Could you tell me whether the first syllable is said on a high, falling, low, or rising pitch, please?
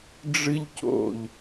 high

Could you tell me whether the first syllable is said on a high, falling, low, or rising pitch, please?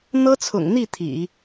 high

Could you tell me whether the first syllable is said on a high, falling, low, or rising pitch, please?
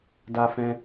high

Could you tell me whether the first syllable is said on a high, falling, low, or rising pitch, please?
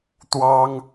high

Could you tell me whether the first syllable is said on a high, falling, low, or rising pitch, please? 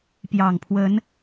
low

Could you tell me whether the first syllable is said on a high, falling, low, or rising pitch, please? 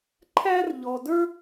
high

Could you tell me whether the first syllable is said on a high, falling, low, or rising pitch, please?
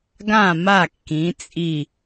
falling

